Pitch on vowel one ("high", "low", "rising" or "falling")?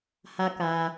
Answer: high